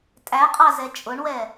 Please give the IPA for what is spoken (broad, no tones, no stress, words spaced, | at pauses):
tʼæqʼɑzɛ t͡ʃʼʊɳwɛ